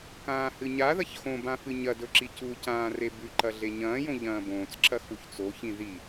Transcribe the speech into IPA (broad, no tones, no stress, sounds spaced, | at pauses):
k ãː h ɨ ɲ a ð ɐ ç x õ b ã f ɨ ɲ ɐ d ɵ ǁ i c u c ãː r e b ʉ ǃ ɐ ɮ e ɲ ɐ̃ː j õ ʎ ɐ̃ː b õː t͡s ǁ ɐ x u ç t͡s o ç ĩ ð i